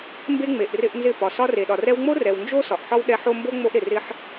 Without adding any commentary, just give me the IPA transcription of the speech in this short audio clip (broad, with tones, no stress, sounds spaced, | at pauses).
m b e˦ ŋ͡m e˨ ʔ r ɪ˧ ʔ n z ɪ˦˨ p ɒ˨ s ɒ˧ r e˨ ɗ ɒ˨ r ɛ˧ w ŋ͡m o˦ r ɛ˨ w n d͡ʒ o˦ s ɒ˨ ʔ ħ ɒ˦ w ɗ ɛ˧ ħ o˦ m b o˦ ŋ͡m o˧ ʔ ɾ ɪ˨ r ɪ˧ ħ